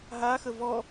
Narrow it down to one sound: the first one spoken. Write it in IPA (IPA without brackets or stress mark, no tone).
ɦ